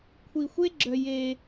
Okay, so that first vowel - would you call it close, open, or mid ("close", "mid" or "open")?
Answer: close